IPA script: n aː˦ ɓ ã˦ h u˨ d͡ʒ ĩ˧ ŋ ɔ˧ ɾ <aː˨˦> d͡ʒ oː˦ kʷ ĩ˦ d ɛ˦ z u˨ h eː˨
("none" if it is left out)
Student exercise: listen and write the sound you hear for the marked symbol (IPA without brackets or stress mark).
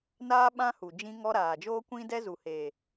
aː˨